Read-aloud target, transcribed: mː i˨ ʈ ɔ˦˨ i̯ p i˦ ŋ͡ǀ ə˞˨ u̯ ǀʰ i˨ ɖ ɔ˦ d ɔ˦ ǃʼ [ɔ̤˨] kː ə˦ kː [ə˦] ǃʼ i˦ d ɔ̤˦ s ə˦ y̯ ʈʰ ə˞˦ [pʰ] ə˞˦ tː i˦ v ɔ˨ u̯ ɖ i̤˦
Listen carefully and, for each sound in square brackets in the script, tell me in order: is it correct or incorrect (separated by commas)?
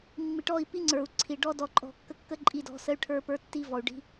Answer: incorrect, correct, incorrect